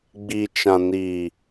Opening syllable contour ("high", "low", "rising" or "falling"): low